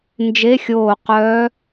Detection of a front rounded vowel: present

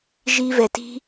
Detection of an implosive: absent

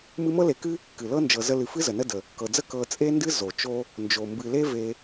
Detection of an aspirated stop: absent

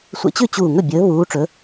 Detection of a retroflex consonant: present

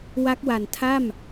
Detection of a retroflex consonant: absent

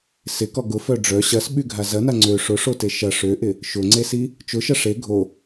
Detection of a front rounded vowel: present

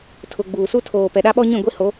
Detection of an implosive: present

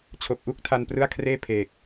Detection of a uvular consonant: absent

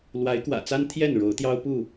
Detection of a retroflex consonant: present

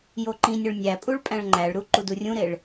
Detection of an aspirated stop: absent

